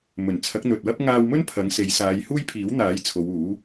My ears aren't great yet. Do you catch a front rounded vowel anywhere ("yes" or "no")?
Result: no